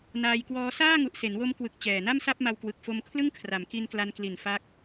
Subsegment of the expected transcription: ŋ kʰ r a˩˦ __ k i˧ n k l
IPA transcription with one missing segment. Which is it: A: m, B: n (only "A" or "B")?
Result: A